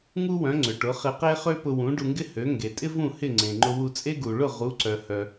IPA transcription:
ŋ u˥ w œ̃˩˥ ŋ͡ǀ ʏ˩ ʈ ʊ˩˥ χ ɪ˧ q e˥ χ ø˥ p ʊ˧ w ũ˩˥ ɖ u˧ ŋ ɡ ɪ˥ h ø˩˥ ŋ ɡ e˩ tʼ ɪ˥ v ũ˥˩ h ɪ˥˩ ŋ͡ǀ ẽ˩ ŋ͡ǃ ʊ˧ w u˧ t͡sʼ e˥ ɡ u˩ ɭ ʊ˥˩ ʁ u˩˥ ǀ œ˩ h œ˩

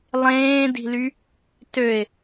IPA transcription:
lˠ ẽː d i̤ l y | t ø ɪ̯

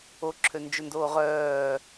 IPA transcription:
o ǁʰ ø n d͡ʒ ø n d oː ʁ œː

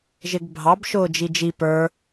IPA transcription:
ʒ ɪ ɡ bʱ ɑ b ʃ ʊː d͡ʒ i d͡ʒ i p ə˞

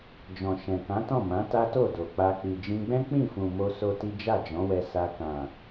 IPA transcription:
d͡ʒ ɔ̃˨ ʃ ɛ̃˨ k ã˨˦ t ɔ̃˦˨ m ã˨˦ t a˦ t o˦˨ d o˨ k͡p a˧ k͡p i˨ d͡ʒ ĩ˧ ɡ͡b ɛ̃˦ k͡p ĩ˦˨ f ũ˨ m o˧ s o˦ t i˦ d͡ʒ a˦˨ d͡ʒ ɔ̃˨˦ w ɛ˧ s a˧ k ã˨

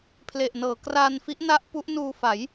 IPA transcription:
pʰ l e˨˩ ʔ n ɤː˩˦ k r aː˧ n f i˦˥ ʔ n a˦˥ ʔ p u˦˥ ʔ n uː˧ f a˩˦ j

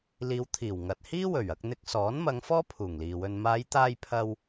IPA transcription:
l iː˨˧ w t̪ʰ iː˨˩ w ŋ ɐ˨ t̚ h iː˥ w ɵ˨˩ ɥ ɐ˧ k̚ n̪ ɪ˨ k̚ s ɔː˨˥ n m ɐ˨˧ ŋ f ɔː˥ pʰ uː˨˩ ŋ l iː˨ w ɵ˧ n m aː˨˧ j t̪ aː˧ j pʰ ɐ˧ w

